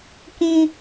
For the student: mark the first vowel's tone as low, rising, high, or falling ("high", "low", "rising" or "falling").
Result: high